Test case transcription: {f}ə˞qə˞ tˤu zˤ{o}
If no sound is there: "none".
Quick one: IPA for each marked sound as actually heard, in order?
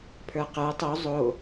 pʰ, o

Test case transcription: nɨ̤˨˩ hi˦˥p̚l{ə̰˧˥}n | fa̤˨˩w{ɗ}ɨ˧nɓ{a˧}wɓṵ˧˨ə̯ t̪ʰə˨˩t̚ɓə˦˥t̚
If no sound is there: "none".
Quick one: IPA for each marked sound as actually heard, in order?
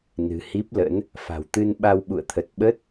ə̰˧˥, t̪, a˧

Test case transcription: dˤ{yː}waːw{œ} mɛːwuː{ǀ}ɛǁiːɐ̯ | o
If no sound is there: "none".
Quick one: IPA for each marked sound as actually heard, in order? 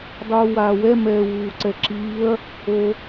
uː, ɛ, ǀ

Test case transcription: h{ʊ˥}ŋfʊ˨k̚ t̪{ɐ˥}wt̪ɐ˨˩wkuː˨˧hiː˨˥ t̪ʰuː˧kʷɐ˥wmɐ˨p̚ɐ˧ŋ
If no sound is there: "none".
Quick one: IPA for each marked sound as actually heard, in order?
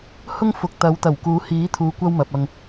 ʊ˥, ɐ˨˧

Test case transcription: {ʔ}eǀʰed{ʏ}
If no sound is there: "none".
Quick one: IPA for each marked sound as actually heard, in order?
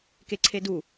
k, u

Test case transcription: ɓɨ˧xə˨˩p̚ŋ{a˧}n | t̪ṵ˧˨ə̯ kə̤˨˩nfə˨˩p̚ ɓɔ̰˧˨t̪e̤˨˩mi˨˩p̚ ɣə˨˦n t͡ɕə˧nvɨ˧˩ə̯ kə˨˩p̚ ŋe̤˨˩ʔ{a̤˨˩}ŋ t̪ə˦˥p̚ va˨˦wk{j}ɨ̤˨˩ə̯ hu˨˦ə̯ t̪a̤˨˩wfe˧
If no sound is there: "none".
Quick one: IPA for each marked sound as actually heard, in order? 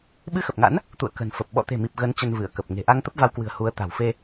a̰˧˥, a˧, w

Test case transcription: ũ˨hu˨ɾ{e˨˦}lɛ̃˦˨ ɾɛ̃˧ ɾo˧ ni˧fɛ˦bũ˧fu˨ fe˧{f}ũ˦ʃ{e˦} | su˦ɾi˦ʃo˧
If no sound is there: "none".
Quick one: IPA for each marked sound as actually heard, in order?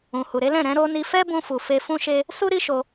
e˨˦, f, e˦

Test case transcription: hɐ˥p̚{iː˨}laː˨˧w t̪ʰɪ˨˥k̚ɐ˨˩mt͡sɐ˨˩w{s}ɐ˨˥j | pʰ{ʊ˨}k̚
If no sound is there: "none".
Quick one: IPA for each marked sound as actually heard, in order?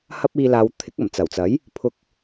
iː˧, t͡s, ʊ˧

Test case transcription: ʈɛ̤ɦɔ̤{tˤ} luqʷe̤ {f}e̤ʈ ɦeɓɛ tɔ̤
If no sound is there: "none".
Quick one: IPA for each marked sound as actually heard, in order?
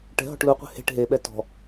ʈ, h

